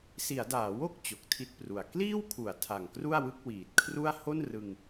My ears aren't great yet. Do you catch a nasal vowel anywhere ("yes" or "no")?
no